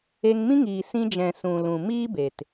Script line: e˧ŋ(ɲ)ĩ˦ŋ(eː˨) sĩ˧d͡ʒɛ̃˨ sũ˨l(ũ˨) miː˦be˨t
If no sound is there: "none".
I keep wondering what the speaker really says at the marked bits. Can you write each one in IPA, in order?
m, iː˨, ũ˨

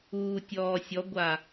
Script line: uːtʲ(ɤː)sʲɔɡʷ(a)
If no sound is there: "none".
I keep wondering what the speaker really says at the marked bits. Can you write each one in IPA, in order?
ɔː, a

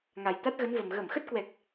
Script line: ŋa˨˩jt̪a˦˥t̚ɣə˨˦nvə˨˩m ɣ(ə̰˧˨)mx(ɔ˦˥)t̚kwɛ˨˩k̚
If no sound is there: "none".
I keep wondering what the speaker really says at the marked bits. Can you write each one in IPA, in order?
ə˧˩, ə˦˥

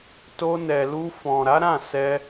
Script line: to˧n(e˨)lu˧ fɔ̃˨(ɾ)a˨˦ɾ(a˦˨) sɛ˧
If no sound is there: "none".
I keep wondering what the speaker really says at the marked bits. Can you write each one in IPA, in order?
ɛ˨, ɾ, ã˦˨

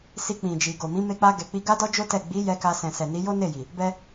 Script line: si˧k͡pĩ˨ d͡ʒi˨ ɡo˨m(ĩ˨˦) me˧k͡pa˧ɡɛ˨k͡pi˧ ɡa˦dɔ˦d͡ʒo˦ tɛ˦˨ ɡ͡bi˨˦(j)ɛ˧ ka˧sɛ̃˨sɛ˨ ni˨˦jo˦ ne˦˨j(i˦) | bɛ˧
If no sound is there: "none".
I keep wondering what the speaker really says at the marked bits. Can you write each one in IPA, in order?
ĩ˨˦, j, i˨

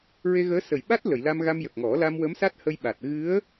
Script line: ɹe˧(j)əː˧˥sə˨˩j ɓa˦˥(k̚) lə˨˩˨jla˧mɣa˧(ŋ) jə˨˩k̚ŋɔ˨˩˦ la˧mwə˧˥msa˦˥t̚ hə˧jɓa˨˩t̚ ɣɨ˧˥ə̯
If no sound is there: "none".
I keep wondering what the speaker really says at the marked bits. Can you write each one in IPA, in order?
ɣ, t̚, m

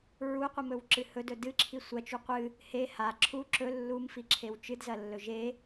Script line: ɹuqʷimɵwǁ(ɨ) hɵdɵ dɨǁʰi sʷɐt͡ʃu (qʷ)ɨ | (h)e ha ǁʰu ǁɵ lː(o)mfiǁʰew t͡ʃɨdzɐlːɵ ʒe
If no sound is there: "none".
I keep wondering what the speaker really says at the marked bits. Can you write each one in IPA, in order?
ɨ, qʷ, h, u

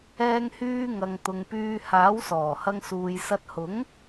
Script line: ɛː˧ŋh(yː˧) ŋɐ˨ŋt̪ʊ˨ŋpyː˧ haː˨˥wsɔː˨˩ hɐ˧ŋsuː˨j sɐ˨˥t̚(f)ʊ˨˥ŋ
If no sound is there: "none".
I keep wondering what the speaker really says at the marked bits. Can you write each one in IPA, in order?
yː˧, h

